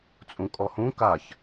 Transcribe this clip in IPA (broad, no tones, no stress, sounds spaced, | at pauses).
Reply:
t͡sʼ ũ kʼ ɔ h ũ k a ç